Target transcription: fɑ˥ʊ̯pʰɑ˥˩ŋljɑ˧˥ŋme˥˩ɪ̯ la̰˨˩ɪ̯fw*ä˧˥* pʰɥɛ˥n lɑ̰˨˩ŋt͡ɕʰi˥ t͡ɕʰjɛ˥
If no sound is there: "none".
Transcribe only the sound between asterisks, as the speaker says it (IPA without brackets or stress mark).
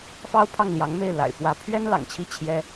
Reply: ä˧˥